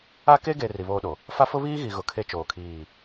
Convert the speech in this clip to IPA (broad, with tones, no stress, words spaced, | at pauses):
a˦ ke˦ɡe˨ ri˨βoː˦ɗo˨ | fa˦fʊ˦βiː˦ɣi˨ ɣʊ˨kʰe˦ t͡ʃoː˨kʰiː˦˨